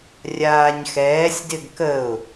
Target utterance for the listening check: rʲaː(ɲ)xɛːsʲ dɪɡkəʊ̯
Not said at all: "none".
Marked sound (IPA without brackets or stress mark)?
ɲ